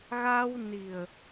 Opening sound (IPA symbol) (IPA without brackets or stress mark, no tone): ɣ